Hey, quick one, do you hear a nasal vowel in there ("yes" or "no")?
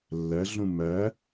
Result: yes